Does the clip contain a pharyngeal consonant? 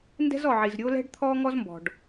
yes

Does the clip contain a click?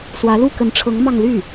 no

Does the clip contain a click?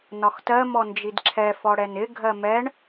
yes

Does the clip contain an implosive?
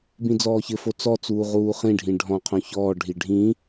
no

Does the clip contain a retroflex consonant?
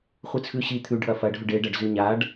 yes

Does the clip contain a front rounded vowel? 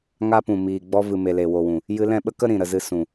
no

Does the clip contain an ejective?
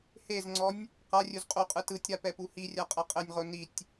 yes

